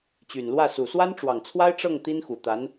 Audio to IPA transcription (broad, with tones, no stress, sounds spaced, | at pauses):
t͡ɕ y˨˩ n l w ä˥˩ s u˨˩ s w a˥ n ʈ͡ʂ w ɑ˨˩ ŋ t͡sʰ w a˥ ɪ̯ ʈ͡ʂ ɤ˥˩ ŋ t̪ i˥ n x u˨˩ t̪ a˧˥ n